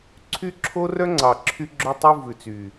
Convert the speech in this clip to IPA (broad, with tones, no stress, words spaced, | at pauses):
ǀʰy˦ǁʰo˦ rœ˦ŋ͡ǀɑ˨ǁʰy˧ ɡ͡ǁɵ˧tˤʉ˧ vʉ˨t͡sy˨